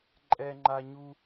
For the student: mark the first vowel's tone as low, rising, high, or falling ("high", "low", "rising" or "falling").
high